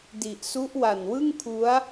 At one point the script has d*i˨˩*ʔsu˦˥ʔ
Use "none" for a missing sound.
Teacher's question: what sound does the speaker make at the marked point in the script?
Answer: i˨˩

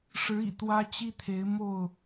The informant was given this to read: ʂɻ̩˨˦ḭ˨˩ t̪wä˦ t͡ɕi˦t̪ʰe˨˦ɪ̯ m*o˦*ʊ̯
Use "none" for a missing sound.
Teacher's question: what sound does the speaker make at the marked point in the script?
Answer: o˥˨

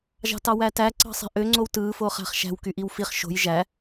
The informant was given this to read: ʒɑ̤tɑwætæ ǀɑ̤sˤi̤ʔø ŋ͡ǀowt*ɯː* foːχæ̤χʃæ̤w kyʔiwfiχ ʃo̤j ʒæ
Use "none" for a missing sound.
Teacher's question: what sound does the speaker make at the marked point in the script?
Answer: ɯː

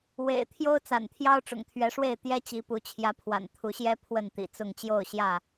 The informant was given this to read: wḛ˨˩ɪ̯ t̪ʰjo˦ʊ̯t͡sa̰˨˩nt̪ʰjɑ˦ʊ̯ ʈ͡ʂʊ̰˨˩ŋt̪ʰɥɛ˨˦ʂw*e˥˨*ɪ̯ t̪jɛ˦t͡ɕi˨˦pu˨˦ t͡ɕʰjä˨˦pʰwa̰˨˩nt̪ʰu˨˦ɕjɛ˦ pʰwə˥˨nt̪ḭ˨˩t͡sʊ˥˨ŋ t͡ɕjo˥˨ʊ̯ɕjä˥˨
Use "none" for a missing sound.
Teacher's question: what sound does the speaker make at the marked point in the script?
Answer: e˥˨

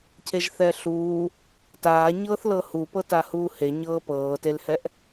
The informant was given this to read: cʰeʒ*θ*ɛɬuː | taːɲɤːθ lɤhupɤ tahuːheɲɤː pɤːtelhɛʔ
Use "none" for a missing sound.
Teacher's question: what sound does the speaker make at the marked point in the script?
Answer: θ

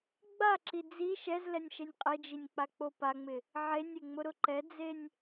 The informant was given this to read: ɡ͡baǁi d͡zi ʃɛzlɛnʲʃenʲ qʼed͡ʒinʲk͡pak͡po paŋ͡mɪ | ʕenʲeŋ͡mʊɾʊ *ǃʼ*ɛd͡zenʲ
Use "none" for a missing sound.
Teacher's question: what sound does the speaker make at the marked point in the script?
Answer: ǃ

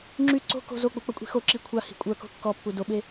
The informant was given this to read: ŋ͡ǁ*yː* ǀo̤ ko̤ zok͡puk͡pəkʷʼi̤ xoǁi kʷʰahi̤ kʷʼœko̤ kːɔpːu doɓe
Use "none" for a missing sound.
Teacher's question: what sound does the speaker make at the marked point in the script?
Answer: y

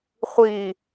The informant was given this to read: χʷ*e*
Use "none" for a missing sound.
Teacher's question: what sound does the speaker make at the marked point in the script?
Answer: i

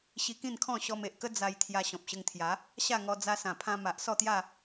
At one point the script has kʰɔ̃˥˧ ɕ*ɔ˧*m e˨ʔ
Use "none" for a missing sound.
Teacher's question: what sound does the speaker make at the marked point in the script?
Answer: ɔ˧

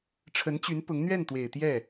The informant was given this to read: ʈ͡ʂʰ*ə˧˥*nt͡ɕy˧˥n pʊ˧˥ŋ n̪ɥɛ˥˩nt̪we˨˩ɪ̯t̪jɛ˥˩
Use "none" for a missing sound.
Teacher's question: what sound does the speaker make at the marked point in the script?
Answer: ə˧˥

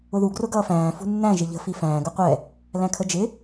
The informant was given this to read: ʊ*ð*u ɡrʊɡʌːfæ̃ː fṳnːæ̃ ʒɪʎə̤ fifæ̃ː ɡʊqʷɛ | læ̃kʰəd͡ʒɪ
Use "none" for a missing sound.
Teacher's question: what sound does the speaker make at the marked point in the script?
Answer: ð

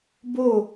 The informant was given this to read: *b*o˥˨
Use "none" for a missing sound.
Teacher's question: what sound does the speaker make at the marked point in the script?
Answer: b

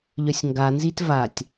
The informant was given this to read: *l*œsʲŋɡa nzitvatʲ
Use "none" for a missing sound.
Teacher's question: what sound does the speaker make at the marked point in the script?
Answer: ʎ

